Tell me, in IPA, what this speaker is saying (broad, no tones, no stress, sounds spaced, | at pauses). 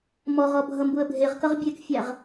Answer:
m ɔ ʁ ɔ bʱ ʌ m b u ə̯ bʱ e ʁ k ʌ ʁ bʲ e k fʲ æ ʁ